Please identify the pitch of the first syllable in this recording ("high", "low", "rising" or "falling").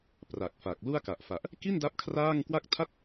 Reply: low